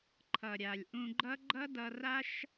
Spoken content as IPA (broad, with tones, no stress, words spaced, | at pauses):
ǃʰʌ˨ ɾʲa˨lʲ ʔũ˧ɡ͡ǃʌ˦ ɡ͡ǃʌ˦dʌ˧ ra˦ʃ